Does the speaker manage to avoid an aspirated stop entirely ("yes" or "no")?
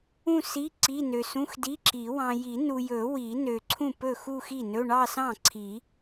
no